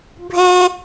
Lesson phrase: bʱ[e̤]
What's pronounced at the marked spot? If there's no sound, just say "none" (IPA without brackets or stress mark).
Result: e